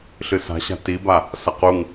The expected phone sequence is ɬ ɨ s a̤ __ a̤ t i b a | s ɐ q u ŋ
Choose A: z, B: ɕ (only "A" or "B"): B